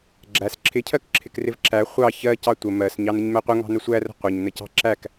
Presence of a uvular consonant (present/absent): present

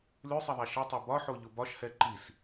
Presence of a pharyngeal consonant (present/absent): present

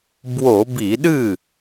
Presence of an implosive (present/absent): present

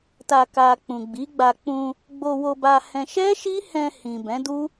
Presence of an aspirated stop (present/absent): absent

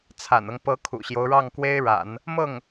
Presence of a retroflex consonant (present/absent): present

